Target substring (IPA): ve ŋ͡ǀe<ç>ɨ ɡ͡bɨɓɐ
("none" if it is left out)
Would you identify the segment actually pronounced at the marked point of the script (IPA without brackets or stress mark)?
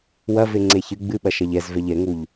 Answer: ç